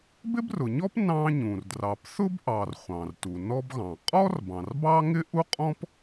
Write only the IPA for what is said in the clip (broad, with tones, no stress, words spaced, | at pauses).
bɪ˥brʊ˩ɲɔ˥p nɑ̃˥ɲũ˩r drɑ˩pθʊ˥bʔɑ˩r χʷɑ̃˩rtu˩nɔ˥bɣɑ̃˩ qʼɔ˥r bɑ̃˩rbɑ˥ŋɪ˥ʔu˥ qʼɔ̃˥p